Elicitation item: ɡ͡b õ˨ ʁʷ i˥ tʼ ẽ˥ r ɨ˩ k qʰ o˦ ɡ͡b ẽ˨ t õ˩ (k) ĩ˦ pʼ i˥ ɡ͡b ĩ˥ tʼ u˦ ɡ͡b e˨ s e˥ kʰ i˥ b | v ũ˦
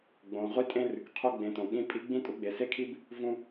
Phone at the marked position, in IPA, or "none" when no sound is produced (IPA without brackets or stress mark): ɠ